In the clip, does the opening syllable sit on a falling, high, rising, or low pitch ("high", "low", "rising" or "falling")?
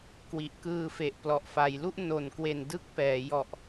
low